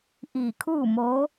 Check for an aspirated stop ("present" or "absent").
present